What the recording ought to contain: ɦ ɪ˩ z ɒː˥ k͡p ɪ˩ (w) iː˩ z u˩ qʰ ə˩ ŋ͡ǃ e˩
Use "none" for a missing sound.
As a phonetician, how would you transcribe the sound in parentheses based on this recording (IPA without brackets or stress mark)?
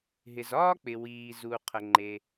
w